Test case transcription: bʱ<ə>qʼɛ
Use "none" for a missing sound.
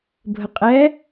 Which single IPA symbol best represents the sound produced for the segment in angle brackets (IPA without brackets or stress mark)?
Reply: ə